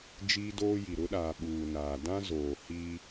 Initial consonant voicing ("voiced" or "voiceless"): voiced